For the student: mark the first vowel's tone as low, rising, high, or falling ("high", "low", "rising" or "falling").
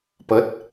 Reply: rising